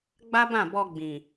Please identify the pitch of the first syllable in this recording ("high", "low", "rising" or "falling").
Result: high